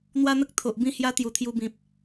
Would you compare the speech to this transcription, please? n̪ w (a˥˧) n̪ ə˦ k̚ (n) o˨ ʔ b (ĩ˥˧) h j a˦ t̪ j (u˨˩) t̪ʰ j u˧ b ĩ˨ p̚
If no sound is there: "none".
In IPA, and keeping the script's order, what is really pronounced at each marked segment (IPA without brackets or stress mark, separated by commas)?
a˦, t̪ʰ, ĩ˥˧, u˨˩